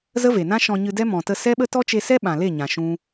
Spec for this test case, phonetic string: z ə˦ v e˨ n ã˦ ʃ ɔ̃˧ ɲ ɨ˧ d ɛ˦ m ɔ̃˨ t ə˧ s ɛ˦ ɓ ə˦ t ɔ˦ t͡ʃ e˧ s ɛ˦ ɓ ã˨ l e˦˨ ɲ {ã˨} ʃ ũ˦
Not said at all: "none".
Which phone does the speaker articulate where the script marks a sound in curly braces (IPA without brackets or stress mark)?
ã˨